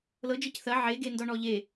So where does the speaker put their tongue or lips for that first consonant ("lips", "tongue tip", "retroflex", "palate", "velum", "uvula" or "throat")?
tongue tip